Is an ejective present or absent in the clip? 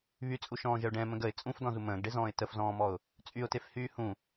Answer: present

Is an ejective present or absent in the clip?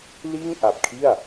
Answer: absent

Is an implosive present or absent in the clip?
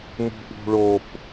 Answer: absent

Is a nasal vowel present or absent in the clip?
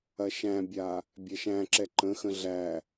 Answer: present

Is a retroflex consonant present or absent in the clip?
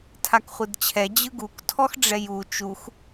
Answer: present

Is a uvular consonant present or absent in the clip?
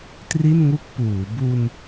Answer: absent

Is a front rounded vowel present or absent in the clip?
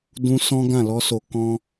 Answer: absent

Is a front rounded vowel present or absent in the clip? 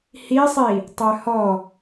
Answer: present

